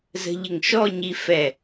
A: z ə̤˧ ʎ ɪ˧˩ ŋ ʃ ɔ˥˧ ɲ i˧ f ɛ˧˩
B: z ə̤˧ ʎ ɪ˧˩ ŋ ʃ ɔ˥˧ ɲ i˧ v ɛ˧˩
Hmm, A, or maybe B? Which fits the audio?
A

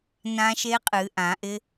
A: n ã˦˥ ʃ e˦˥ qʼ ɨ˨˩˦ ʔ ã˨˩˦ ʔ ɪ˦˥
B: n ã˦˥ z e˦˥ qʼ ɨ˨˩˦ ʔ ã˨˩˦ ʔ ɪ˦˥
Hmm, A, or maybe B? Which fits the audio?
A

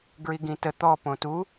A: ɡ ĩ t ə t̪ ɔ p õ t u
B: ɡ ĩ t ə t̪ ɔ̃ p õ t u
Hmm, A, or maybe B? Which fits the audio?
A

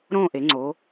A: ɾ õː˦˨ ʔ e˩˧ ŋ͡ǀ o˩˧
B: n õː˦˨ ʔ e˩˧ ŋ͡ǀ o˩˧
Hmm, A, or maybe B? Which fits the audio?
A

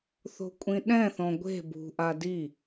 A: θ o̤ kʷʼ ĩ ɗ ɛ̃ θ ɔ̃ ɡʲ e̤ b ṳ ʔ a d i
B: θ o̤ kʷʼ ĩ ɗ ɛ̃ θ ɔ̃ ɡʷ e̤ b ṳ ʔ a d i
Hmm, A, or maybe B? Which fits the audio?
B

